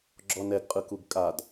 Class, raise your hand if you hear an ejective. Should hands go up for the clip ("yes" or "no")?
yes